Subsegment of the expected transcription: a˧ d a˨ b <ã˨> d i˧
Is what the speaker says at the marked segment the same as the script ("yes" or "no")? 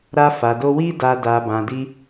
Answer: yes